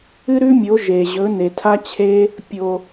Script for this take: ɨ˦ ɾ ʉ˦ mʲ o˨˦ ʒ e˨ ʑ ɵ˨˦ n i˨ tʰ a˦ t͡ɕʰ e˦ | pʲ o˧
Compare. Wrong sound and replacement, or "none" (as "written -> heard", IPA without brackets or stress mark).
i˨ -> e˨